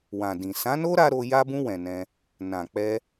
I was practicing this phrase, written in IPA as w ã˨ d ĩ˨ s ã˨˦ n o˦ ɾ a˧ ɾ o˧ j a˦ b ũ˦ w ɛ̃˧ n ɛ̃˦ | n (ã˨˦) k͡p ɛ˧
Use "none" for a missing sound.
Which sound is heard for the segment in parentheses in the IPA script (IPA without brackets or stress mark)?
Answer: ã˨